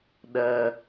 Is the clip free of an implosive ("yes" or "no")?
no